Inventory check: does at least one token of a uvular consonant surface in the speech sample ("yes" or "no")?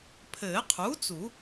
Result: yes